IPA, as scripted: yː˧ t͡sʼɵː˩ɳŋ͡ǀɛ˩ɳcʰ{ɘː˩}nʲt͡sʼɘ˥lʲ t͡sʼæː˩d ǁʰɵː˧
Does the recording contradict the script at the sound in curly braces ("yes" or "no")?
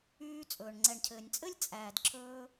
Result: no